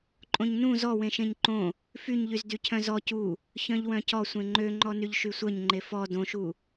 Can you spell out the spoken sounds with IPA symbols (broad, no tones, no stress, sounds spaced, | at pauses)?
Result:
ǃʼ õ ɲ n ũ z ɔ w ẽ ʃ ẽ ɲ ǃ õ | f y ɲ ʎ y z d y cʰ œ̃ z ɔ c u | ç œ̃ ʎ w œ̃ c ɔ sʷ ẽ ŋ͡ǃ ø ŋ͡ǃ ɔ n y ʎ ʃ y sʷ œ ɲ ŋ͡ǃ e f ɔ d õ ʃ u